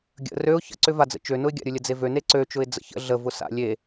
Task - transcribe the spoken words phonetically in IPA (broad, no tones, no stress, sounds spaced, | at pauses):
ɡʲ ə̰ r ø ʊ̯ ç ə̰ ǀ ʏ v a d͡z ə̰ t͡ʃ ø n ʊ ɪ̯ ɡʲ a̰ ɾʲ ʊ lʲ ə d͡z e v ø n e ǀ ø t͡ʃ ʊ ɪ̯ d͡z ə̰ ç ə̰ ɮ ə v ʊ s a̰ lʲ e